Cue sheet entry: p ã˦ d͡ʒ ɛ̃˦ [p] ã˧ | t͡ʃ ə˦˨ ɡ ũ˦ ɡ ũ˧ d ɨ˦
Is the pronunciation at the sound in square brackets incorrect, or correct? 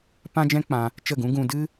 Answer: incorrect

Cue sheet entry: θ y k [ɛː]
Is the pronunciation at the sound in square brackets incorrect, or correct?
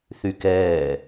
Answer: correct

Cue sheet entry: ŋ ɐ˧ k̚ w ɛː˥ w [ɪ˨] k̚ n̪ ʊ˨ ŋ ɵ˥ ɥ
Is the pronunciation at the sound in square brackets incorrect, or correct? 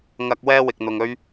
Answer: correct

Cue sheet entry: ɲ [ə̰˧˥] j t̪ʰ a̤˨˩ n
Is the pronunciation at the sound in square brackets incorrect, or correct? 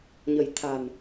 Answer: incorrect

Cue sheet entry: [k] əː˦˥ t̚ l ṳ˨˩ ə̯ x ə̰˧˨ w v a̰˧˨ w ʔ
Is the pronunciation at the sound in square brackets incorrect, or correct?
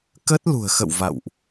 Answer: correct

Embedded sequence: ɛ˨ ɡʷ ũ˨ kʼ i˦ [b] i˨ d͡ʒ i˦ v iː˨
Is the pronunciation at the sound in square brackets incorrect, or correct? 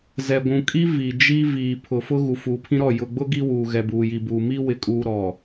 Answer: incorrect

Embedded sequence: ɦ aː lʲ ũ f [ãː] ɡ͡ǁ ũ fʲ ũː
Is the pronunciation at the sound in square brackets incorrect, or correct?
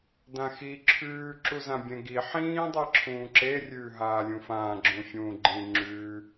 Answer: correct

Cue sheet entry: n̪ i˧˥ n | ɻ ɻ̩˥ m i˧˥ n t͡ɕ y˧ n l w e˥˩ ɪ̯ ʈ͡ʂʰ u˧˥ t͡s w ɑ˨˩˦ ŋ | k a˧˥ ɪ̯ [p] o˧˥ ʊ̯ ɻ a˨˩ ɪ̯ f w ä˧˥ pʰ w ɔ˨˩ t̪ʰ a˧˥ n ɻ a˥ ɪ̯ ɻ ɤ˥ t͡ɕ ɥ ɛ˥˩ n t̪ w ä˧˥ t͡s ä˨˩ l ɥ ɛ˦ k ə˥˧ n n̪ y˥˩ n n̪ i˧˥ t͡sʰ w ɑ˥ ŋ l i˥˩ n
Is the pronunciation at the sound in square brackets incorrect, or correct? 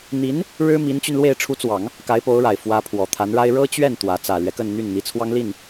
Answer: correct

